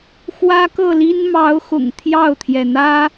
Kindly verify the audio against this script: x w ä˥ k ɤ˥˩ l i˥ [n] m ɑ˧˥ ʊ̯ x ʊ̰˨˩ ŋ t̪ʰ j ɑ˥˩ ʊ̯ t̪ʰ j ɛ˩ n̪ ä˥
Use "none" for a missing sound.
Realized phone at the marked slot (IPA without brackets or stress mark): n